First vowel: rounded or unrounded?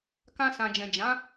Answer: unrounded